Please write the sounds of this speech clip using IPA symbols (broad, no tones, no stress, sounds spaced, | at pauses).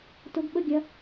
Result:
t ʊ ɡ ɓ ə ɡʲ ɐ